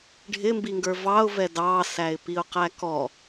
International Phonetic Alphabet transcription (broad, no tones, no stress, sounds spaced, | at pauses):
ɖʱ ɪ m b i ŋ ɡ ə˞ v ɑ ʊ̯ v ɛ d ɑ s æ ɪ̯ p i ʊ̯ q æ k ɔ